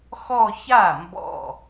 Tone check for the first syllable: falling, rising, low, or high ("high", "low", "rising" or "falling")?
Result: falling